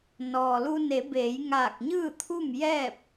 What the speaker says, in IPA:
nɔː˩lu˧ ne˩˧beː˩˧j ŋaː˧˩k̚ɲɯː˥˨t̪ʰu˥˨m jɛː˥˨p̚

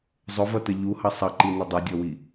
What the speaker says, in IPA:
zˤʊvʌtə ʎuhʌ sˤʌǃinɪ dˤɛdʲɔwi

